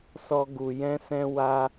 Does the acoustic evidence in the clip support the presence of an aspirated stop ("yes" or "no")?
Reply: no